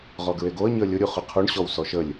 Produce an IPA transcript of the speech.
ʁ ɔ ɡ ɹ e ɡ o ə̯ ɲ əː lʲ ʊ ɾʲ u χ ʊ qʰ u ɳ ɕ ɔ w s ɔ ʃ ə lʲ

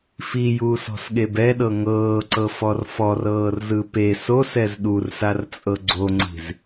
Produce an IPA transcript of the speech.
f i j uː s ɔ̤ s ɠ e b ɛ ɗ ɤ ŋ ɤː ǀ ɤ f ɔ r f ɔ r ɤː r z ɯ p e s o s ɛ z ɗ u r s a r t͡sʼ ɤ ɡ͡ǀ o ŋ͡ǀ i̤ z

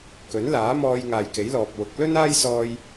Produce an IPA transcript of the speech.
k ɵ˨˥ n l aː˨˥ m ɔː˧ j ŋ aː˨ j k e˨˥ j l ɔː˨ p̚ w ʊ˨˥ k̚ l ɵ˥ n aː˥ j s ɔː˧ j

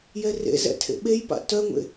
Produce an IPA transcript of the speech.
j ɛ r ḛ z ɛ̰ tʰ ḛ ɓ e j p a̰ t œ ŋʷ ḛ

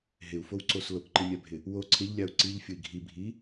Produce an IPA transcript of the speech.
ɦ ɪ u̯ f o w ǀ o s l o k ǃ i mʲ a bʱ ɪ | w o ǀʰ ɪ ʎ lʲ a u̯ ǀ i ʎ fʲ ʊ i̯ ɡʱ i bʱ i

